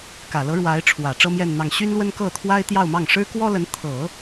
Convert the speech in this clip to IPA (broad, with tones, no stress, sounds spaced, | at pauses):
k ä˨˩ l ɤ˧˥ ɻ w a˧˥ ɪ̯ ʈ͡ʂʰ w ä˨˩ ʈ͡ʂ ɤ˥ m j ɛ˥˧ n n̪ ɑ˥˩ ŋ ɕ y˥ n l w ə˥ n k ɤ˥˩ t̪ʰ w a˥ ɪ̯ t̪ j ɑ˥˧ ʊ̯ m ɑ˥˩ ŋ ʂ ɻ̩˥ k w ɔ˥ l ə˧˥ n t̪ʰ ɤ˨˩˦